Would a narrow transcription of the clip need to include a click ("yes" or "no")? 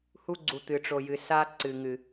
yes